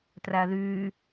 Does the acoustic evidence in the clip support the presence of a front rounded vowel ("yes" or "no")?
yes